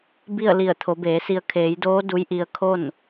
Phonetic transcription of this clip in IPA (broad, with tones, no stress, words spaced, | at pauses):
bi˥˨ə̯ li˧˩ə̯t̪ʰo˩˧beː˩˧si˧ə̯ kʰeː˩˧jdoː˧˥ du˧˥jʔi˧ə̯ kʰo˥˨n